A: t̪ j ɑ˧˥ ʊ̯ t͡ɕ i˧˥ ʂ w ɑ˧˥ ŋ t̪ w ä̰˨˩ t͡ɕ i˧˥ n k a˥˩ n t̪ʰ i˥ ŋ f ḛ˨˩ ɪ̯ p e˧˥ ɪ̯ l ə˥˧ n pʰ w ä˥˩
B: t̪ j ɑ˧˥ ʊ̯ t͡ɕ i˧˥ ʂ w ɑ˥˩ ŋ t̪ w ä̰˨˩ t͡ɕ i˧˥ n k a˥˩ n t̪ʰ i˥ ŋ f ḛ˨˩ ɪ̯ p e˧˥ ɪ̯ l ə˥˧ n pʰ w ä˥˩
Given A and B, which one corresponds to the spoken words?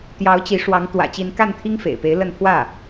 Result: A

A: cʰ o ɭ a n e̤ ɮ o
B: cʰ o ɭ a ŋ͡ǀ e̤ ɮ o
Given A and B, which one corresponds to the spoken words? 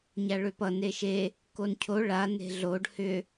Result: A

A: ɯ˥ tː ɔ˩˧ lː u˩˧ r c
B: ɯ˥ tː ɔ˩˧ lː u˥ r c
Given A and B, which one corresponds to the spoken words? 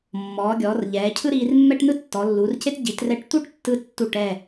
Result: A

